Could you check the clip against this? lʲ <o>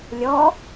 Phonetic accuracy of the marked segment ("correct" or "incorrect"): incorrect